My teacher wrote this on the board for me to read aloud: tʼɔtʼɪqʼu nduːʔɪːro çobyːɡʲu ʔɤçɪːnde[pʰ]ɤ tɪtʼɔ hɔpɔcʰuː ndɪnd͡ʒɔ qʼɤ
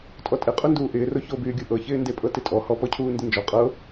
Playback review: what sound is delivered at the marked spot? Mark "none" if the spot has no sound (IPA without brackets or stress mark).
pʼ